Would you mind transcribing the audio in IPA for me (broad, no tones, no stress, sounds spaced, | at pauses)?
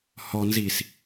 h ɔ n z iː s